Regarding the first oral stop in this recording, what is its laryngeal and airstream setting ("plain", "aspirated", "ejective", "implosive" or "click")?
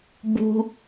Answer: plain